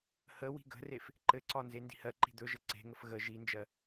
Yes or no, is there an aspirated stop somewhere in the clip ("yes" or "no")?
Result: no